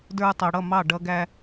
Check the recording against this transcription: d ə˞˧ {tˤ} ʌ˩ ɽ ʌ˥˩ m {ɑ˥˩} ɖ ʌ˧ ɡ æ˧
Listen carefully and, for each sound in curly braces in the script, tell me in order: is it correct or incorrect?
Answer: correct, correct

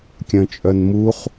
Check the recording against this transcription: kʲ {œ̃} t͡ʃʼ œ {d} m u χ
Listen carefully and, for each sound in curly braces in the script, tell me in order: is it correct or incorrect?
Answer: correct, incorrect: n

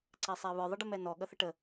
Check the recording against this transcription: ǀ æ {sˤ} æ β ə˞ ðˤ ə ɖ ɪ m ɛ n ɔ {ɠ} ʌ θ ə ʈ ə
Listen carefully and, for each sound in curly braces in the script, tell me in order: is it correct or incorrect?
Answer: correct, correct

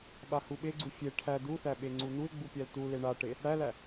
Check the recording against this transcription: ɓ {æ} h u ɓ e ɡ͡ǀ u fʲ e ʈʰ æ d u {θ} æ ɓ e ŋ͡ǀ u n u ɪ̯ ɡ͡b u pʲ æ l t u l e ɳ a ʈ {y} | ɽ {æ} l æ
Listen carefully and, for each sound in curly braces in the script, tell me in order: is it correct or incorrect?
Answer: incorrect: a, correct, incorrect: e, correct

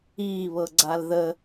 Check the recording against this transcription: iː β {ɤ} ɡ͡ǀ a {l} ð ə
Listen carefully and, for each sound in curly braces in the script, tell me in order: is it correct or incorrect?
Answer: correct, correct

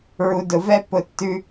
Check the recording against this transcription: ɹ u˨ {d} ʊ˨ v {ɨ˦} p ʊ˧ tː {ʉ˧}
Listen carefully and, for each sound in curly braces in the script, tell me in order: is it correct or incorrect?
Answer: correct, incorrect: ɛ˦, correct

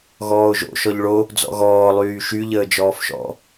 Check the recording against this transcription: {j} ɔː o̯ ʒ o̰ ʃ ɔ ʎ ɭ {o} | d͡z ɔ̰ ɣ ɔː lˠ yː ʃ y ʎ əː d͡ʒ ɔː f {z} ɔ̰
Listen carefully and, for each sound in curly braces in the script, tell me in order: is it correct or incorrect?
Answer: incorrect: ɣ, correct, incorrect: ʃ

